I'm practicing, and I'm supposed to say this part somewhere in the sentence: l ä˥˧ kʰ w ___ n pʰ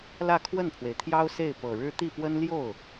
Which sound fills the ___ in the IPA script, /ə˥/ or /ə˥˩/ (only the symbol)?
ə˥˩